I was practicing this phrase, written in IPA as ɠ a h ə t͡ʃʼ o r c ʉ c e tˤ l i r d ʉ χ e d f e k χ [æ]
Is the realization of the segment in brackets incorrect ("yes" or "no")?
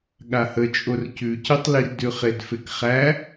no